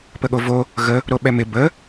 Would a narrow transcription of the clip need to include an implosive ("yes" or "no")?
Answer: yes